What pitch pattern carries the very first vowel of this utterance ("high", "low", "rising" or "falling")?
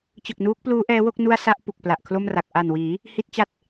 low